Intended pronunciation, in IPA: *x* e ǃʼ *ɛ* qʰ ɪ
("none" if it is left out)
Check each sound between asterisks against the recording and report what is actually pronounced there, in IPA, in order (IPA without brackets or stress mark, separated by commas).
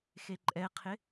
x, ɛ